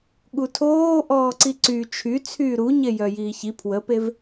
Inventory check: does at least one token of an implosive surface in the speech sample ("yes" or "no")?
yes